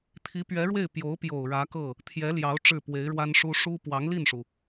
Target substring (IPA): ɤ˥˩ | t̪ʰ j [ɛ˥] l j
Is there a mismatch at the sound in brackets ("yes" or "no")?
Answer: yes